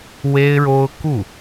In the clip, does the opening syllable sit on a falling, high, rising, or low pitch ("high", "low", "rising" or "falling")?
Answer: high